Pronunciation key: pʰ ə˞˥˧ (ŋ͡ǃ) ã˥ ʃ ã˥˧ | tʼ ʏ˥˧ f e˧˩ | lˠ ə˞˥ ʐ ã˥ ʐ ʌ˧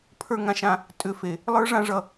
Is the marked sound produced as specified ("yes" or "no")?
no